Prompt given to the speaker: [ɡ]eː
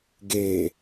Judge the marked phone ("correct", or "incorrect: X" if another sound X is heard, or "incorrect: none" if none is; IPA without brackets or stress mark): correct